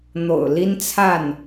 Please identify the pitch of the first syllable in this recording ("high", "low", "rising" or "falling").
low